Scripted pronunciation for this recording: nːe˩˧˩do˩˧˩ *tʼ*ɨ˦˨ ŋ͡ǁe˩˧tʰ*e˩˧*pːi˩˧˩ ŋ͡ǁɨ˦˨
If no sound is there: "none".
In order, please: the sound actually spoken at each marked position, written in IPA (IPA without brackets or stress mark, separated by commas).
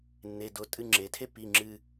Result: tʼ, e˥